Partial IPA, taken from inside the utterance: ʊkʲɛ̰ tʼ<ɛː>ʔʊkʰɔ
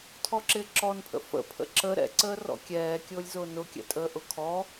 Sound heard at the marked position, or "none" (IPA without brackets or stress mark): əː